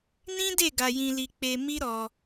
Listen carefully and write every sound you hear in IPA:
nĩ˦de˦˨ ɡa˧jĩ˧li˧k͡pe˧ mi˦ ɾɔ˧

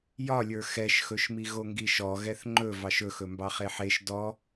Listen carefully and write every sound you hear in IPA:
jɒlʲə˞ xɛʃxɵʃmi ɣoŋɡiʃɔ ɣɛθŋ͡ǃɵ vɑʃɵxɵ mbɑχeħeʃ dɔ

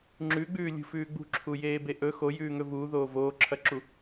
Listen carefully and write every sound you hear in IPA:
ŋ͡ǁʉɡ͡bʉː lʲṳfʉːɡ͡bṳǁʰu jeːbeʔɵ xo jʉːŋɵvuːðoː voːǁʰɐǁu

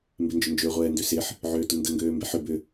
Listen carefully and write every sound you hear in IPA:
mbɪnd͡ʒʏnd͡ʒø ʁʷɛːndøsɪħ | ʕøːtʊndə ŋɡøːmbeħʏ bʏ

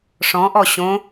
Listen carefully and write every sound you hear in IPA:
ʂɔ̃ʔɔ ɕõ

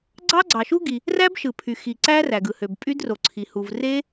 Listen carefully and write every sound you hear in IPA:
ɡ͡ǀɑ˦˥ɡ͡ǀɑ˩ʃu˦˥ɡi˩ | ræ˦˥bʃɯ˩ pʰy˩ xi˩ǀæ˦˥ ræ˩ɡɯ˩hø˩b pʼy˦˥dro˩ǀʰi˩ hu˩vre˦˥

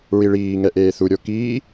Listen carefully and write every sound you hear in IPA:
ɹiɭiː ŋɛʔeːθu ɾʲokiː

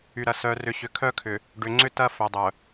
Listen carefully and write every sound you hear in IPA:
y˨ɾɐ˨ sœ˨rʏ˨ ɕʏ˨kʰœ˦kʰʏ˨ | ɖʏ˨ŋ͡ǀʏ˦ tɐ˦ fœ˨dˤœ˨

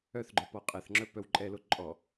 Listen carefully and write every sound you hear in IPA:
œθɡ͡ǃœ pɔqʼɛθŋ͡ǁœ pœwǃʼɛlo ǃʼɔ

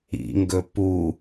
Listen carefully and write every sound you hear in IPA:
ḭŋɡɵ pu

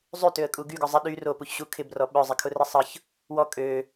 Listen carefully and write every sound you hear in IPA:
zˤytøə̯kʼu ɡyɡʊ zˤɪ ɗy ropuçɕu kʰɪbrɔ ɓœzˤɪkʰʊrɪ sˤəç | wɔ kʼø

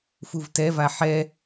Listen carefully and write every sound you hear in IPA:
fuvtɛva ħɛ

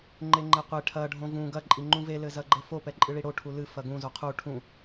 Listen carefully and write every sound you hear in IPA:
ŋ͡ǃeŋ͡ǃɛqʷe ʈʰɐ ɖʱõvũ ɡɐ ǃʼiŋ͡ǃũve lɘzɐɡ͡ǃɘfo pɛǃʼɨɭiɽo ʈʰulɨ fɐɡũ zoqʰu ʈʰũ

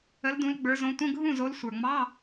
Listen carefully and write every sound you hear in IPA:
ə˨˦ldũ˨˦l ɡ͡bə˞˨˦ zõ˨˦tʷə̃˧˥˧ ɡʱũ˥˩zo˨˦l sʷə˞˨˩ŋ͡mɑ˧˥˧

